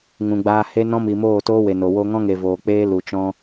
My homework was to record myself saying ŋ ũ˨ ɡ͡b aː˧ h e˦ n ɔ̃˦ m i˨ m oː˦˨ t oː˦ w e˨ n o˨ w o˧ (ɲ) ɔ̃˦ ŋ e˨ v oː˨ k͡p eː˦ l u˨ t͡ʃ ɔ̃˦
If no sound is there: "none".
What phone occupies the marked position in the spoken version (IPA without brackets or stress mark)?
ŋ